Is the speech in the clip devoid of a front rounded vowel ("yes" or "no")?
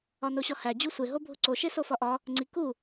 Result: yes